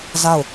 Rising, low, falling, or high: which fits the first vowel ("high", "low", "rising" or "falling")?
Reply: falling